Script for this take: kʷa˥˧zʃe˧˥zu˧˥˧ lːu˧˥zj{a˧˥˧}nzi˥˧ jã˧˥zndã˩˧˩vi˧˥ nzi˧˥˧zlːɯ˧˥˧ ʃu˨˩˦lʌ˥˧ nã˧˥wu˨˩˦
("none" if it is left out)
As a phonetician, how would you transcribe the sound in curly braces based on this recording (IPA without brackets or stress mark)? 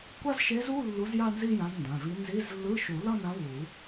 a˥˧